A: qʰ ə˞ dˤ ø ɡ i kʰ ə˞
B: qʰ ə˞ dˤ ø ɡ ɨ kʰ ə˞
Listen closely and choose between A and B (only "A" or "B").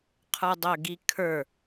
A